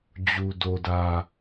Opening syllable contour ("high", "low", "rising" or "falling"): low